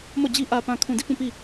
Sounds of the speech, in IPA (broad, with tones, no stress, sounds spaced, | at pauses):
m ɔ˦˨ d͡ʑ i˦ ʔ ä˨ p ã˨ kʰ ũ˨ d i˦˨ p ũ˦˨ p i˦˨